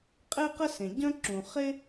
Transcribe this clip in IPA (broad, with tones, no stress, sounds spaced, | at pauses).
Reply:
qʼ e˥ q ə˥ s ẽ˩ ɟ œ̃˥ ǁ ũ˩ χ e˥